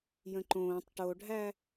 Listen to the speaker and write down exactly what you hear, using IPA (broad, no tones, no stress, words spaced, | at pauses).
jə̃ǃõːtˤ ʈoɖʱæ